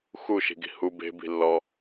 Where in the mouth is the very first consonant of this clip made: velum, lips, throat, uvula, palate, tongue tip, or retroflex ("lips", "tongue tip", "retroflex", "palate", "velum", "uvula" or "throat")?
velum